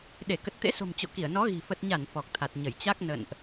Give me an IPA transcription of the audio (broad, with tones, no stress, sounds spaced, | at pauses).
ɗ e˧˩ k ə˨˩ t̚ t̪ ḛ˧˥ s o̤˨˩ m t͡ɕ o̰˧˨ k i˧˩ ə̯ n ɔ˨˦ ɣ i̤˨˩ f ə˨˩ t̚ ɲ a˧˩ n f ɔ˨˩ k̚ t̪ʰ a˨˩ t̚ ɲ ə˧˩ j t͡ɕ a˦˥ k̚ n ə̰˧˨ n ʔ